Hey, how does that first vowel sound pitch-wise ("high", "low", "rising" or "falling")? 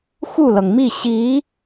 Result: falling